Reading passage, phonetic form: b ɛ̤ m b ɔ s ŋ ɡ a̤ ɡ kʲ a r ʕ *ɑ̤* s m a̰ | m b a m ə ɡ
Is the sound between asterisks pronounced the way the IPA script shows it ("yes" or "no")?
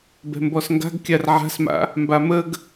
no